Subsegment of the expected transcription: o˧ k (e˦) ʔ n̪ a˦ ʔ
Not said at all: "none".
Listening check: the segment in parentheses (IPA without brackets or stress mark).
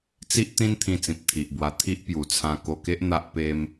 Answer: e˦